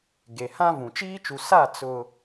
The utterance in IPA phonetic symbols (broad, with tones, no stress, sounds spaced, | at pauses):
ɡ e˨ h ã˦ v ũ˨ t͡ʃ iː˦ t͡ʃ u˨ s a˦˨ t͡s ʊ˨